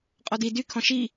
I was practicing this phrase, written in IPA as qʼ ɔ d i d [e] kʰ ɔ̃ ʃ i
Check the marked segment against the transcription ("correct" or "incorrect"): incorrect